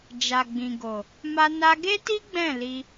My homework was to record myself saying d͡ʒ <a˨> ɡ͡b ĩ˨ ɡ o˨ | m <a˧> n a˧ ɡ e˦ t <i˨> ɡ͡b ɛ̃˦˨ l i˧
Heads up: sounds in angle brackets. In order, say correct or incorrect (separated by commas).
correct, correct, incorrect